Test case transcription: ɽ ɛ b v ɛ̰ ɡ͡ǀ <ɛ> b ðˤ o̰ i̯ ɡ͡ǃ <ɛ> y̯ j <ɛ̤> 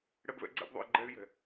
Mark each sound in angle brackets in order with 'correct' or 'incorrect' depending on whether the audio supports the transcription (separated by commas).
incorrect, correct, correct